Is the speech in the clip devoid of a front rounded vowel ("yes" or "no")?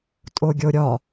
yes